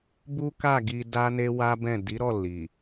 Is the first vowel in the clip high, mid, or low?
high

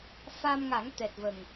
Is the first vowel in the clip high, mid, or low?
low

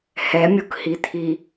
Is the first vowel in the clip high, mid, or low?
mid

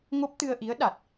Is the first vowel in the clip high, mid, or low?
mid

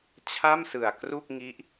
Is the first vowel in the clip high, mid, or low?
low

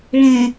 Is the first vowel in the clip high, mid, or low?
mid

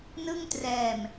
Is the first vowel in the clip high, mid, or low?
high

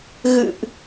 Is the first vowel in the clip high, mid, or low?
high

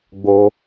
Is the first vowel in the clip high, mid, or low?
mid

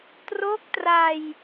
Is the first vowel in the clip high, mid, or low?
mid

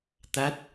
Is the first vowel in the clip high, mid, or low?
low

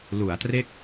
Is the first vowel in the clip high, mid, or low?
high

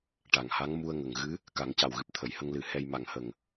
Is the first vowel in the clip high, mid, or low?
low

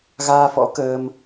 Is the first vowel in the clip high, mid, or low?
low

